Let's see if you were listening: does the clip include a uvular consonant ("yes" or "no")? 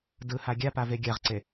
yes